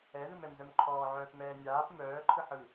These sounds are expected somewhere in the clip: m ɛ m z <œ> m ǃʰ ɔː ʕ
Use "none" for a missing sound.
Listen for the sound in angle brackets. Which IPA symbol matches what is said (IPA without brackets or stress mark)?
œ